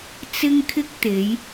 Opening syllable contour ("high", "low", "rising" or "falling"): high